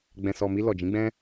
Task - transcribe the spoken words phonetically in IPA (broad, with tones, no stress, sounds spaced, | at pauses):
ɡ͡b ɛ̃˨ s ɔ˨ m i˧ l ɔ˨ d͡ʒ ĩ˨˦ ɡ͡b ɛ̃˦